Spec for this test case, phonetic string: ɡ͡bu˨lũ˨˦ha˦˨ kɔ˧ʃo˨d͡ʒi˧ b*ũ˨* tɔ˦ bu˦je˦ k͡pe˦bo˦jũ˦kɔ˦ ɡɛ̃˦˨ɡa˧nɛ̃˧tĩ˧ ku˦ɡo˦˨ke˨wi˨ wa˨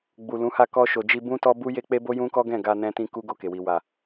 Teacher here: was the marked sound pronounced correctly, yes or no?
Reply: no